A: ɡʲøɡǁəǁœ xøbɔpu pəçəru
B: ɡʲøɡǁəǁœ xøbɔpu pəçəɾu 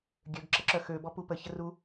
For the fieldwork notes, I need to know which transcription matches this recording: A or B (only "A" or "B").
A